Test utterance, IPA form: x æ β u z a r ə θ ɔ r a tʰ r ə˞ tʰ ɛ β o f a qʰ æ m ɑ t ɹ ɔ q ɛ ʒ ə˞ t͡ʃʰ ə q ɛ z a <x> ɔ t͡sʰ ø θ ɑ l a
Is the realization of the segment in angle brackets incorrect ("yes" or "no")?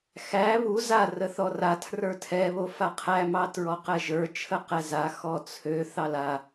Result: no